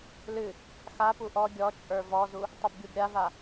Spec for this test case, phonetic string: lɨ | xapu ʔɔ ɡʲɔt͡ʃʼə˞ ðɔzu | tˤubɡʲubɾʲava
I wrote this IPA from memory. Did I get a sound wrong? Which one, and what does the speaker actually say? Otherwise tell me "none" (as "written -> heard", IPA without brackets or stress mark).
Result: ð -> v